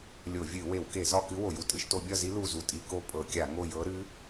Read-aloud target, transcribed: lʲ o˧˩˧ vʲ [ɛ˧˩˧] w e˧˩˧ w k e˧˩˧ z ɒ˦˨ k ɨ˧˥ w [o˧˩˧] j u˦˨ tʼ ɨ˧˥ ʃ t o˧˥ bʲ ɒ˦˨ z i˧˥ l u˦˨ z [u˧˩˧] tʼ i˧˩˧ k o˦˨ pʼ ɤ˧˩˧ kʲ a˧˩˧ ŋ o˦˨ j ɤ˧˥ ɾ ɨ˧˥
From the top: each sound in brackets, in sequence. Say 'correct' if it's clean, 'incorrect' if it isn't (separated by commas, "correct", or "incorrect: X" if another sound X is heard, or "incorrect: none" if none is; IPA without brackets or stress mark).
incorrect: ɨ˧˩˧, correct, incorrect: u˦˨